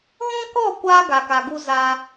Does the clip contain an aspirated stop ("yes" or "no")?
no